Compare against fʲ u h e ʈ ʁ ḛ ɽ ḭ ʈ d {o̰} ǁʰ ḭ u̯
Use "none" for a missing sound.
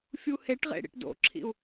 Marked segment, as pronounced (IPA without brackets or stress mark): o̰